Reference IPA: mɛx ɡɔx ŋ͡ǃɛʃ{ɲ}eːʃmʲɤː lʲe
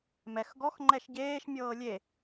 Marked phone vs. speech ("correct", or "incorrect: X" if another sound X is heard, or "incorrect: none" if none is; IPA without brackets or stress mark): incorrect: ɟ